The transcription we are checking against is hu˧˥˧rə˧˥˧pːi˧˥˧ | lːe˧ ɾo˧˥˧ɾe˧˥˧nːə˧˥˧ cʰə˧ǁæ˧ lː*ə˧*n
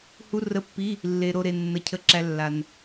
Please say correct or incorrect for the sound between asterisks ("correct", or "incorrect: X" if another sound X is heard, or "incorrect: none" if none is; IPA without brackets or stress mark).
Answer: incorrect: a˧